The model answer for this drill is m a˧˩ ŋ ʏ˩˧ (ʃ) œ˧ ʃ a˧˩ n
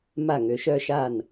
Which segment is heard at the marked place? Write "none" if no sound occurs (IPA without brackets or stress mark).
ʃ